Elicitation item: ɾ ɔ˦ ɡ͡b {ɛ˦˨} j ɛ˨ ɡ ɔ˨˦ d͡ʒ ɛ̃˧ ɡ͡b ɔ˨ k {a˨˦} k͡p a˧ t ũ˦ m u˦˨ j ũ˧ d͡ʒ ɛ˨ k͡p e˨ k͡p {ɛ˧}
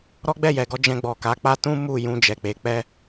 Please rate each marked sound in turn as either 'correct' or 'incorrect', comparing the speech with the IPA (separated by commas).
correct, correct, correct